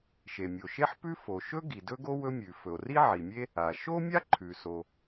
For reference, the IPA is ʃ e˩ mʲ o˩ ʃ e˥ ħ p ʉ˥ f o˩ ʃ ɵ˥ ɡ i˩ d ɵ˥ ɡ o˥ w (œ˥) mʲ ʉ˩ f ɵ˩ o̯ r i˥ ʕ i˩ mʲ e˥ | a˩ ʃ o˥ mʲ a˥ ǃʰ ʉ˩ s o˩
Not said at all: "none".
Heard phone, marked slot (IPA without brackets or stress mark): ɵ˥